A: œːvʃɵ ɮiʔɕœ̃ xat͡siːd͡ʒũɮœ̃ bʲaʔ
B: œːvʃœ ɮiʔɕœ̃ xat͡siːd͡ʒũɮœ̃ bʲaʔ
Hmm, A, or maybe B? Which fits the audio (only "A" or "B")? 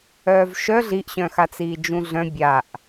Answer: B